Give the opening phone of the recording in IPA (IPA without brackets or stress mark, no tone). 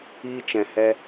iː